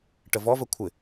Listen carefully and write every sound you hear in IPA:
ʈ ə v ɔ v ə kʷʰ ɪ

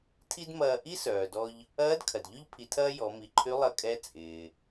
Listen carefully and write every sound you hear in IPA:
tʰ i˥ d m ɐː˧ ʔ i˥ s œː˩ d ɔ˧ ʎ | ɐː˧˥ d kʰ ɐ˩ d ʎ ʏ˥ ʎ pʰ i˩˧ tʰ ɐː˥ j ɔ˩˧ m i˩˧ ǃʰ y˧˥ lˠ ɐ˧ kʼ ɛ˧˥ t͡sʼ ɪː˩

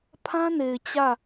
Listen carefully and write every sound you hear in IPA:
pʰ ã˦ n e˨ ɪ̯ t͡ɕ ä˦˨

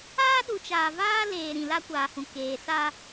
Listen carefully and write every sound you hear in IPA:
aː˦ ɗ u˨ t͡ʃ aː˨ v aː˦ l eː˨ ɾ ĩ˨ l a˦ kʷ aː˨ h ũ˨ k eː˨ s aː˦

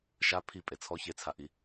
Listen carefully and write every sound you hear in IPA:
ʃ a pʰ i pʼ e t͡sʰ ɔ ç e t͡sʰ a ʔ i

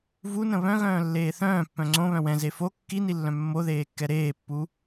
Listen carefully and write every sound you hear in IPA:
v u n ə̃ β œ̃ ɣ œ̃ː lː eː θ œ̃ː pː œ̃ ŋ͡ǀ õ β œ̃ w ɛ̃ z e f o kː i n i lː œ̃ mː o ð eː kː ɛ ɾ eː pː u

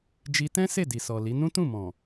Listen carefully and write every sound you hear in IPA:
d͡ʒ i˧ t ɛ̃˦ s e˦˨ d i˨ s ɔ˨ l i˨˦ n ũ˦ t ũ˦˨ m ɔ̃˨

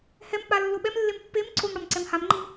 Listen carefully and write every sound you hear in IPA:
h ɛ m k͡p a lː o ɓ ɛ m lː e m pː e m ǀʰ o m ɽ ɔ m ǀ ɛ m h a m ŋ͡ǃ i m

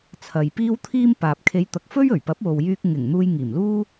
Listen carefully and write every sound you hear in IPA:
t͡sʰ ɐ˨ j p iː˥ w t̪ʰ iː˥ m p aː˨ p̚ kʰ e˨˧ j t̪ ɐ˨ k̚ f ɵ˥ ɥ ɵ˨˩ ɥ p ɐ˨˥ p̚ w o˨ w j yː˧ k̚ ŋ ɪ˨˩ ŋ n̪ uː˧ j ŋ iː˨˩ m l uː˥

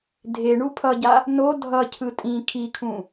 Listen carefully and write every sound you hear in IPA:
dʱ e ɳ u pʰ ʌ ɟ a | n o dʱ ʌ cʰ ɯ tʼ ĩ kʰ i kʰ ũ

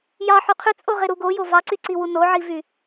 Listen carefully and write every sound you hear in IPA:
j ɑ ħ y qʰ y t͡sʼ o ʁ e ɾ u ɡ o j o v ɑ ǀ y ǀ i w u n o ʕ i v y

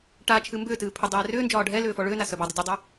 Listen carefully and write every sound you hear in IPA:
ʈ a t͡ʃʰ ɨ m b ʏː t ɨː pʰ ʏ dˤ ɛː r ʏː n d͡ʒ ɒː ɖʱ ɛ l ʏː f ɔ ɭ ʏː n a s œ b ɒ dˤ ɨ dʲ œ dˤ œ

